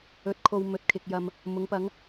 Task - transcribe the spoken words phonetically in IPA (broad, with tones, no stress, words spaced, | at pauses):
ɵ˨˥t̚ kʰo˨w mɵ˨t̚kʰɪ˨k̚jɐ˨m | mʊ˨˥ŋpɐ˨˥ŋ